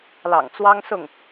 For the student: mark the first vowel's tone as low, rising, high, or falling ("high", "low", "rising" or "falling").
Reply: low